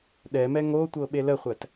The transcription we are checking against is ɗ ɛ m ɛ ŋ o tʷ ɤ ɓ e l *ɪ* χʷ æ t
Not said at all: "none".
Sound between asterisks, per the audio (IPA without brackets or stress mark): ə